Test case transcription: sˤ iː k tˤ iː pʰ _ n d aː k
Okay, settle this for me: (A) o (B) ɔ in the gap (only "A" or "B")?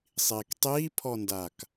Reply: B